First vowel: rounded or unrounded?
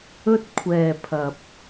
rounded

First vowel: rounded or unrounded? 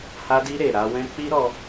unrounded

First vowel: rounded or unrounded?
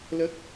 unrounded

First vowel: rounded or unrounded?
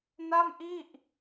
unrounded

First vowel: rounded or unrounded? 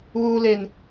rounded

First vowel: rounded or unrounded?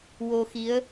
rounded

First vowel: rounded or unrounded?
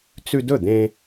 rounded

